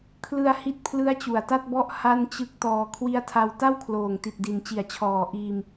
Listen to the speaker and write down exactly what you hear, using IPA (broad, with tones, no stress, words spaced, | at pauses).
kʰlɯ˧a̯ hi˥˩t̚ pʰlɯ˦˥a̯t͡ɕu˨˩a̯ta˥˩t̚bɔ˦˥ʔ ha˥˩nt͡ɕɯ˦˥k̚tɔː˧ kʰwi˦˥a̯tʰa˧w ta˥˩wkʰloː˨˩ŋti˨˩t̚di˩˦n t͡ɕi˨˩a̯t͡ɕʰɔː˨˩ ʔiː˧m